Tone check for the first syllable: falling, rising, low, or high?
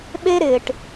high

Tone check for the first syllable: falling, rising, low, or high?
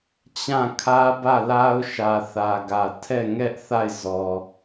falling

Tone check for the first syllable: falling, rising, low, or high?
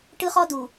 high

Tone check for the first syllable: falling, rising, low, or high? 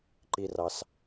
high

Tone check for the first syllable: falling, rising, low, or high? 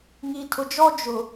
low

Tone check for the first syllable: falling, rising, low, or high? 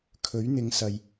rising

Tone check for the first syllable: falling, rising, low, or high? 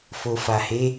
low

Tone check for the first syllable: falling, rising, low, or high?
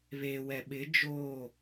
low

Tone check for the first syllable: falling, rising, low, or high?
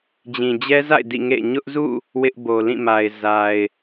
low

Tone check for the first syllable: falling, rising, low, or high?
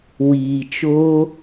low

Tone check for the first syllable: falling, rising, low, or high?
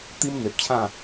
high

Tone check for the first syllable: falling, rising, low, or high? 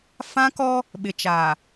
high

